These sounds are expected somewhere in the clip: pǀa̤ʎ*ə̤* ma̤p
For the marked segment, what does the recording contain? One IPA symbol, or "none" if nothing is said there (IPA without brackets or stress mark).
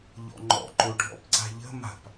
ə̤